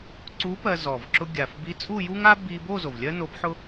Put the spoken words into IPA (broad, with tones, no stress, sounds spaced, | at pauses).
ǀ u˧˥ p ɜ˧ z ɔ˨˩ v ǁ ʊ˧ ɡʲ a˨˩ f b i˧˥ t͡sʼ u˥˧ j u˥ ŋ a˥ b i˧ b o˥˧ z o˨˩ v lʲ ɜ˥ n o˧˥ b ħ ʊ˥